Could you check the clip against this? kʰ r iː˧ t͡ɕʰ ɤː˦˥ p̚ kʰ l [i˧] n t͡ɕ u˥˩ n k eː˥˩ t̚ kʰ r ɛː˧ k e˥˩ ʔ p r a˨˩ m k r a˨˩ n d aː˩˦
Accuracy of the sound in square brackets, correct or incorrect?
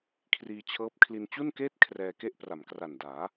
correct